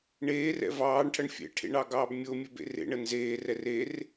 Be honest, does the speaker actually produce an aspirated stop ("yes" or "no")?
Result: yes